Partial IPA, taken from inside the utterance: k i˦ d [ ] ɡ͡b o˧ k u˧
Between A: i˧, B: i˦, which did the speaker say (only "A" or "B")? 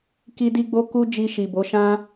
A